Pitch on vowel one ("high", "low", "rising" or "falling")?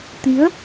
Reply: rising